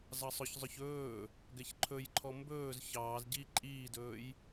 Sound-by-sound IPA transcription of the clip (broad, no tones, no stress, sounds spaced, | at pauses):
z ɑ sˤ ɵ ç zˤ ɵ ç ɵː | ɡ ɛ ç ǃʰ ɵ j ǃʰ ɔ m b ɵː z ç ɑː z ɟ i ǃʼ iː d ɵː j